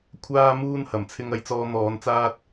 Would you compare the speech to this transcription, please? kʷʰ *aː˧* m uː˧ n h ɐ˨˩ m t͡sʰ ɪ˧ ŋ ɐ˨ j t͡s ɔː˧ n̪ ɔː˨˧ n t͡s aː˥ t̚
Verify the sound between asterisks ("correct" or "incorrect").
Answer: correct